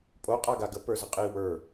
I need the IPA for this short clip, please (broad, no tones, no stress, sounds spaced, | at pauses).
pʼ o qʼ a ɡ a ɡ ə p ə˞ z ə qʼ i w ə˞